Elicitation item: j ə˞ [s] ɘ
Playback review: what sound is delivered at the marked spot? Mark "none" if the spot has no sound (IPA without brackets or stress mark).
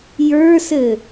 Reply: s